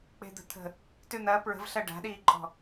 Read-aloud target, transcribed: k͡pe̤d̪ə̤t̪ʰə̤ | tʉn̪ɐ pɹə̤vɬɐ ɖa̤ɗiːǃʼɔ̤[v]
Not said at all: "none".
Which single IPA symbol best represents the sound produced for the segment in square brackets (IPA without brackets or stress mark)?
none